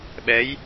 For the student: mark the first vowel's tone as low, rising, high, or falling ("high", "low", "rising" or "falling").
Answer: rising